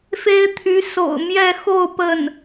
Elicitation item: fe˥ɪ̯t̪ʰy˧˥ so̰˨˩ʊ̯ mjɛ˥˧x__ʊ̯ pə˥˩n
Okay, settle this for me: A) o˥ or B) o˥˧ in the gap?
B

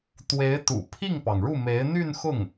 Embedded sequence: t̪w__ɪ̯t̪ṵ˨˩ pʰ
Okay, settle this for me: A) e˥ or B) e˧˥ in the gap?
B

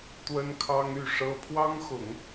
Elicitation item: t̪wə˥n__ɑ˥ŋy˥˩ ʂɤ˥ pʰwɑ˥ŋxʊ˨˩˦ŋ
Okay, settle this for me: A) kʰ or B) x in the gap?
A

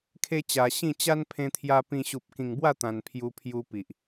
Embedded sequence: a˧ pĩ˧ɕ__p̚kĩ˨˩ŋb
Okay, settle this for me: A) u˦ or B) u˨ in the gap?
B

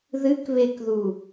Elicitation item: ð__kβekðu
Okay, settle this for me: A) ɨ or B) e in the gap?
A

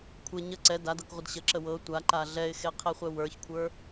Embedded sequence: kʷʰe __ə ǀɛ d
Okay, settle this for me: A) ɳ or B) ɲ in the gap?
B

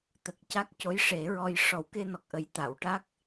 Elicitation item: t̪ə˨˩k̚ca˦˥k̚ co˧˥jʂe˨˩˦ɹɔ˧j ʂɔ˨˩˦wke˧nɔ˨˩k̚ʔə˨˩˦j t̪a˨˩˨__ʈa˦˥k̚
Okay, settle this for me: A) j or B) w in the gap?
B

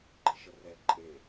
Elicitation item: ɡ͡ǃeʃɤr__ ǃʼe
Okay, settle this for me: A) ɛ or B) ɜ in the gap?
A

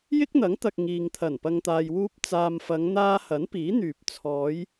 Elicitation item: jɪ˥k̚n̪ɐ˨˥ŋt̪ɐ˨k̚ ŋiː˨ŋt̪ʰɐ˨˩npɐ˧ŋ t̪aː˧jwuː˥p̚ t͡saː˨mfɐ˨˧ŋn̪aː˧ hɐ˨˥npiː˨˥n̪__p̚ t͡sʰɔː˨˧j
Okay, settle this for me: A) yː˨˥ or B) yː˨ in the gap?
B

